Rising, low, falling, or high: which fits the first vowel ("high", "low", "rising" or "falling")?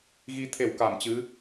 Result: rising